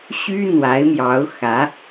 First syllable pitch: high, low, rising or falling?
high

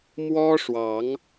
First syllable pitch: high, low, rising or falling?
high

